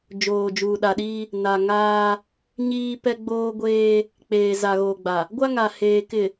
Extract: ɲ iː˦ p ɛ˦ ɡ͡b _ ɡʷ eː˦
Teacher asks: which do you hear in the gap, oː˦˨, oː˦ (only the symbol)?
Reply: oː˦